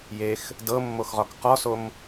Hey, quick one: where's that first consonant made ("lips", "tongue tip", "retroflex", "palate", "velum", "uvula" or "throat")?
palate